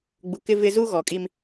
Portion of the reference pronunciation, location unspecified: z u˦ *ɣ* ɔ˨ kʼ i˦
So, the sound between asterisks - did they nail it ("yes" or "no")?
yes